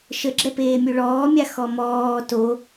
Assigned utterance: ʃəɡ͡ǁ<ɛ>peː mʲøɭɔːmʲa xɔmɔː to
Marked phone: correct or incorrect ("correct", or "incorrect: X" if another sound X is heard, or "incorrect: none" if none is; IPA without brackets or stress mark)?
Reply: correct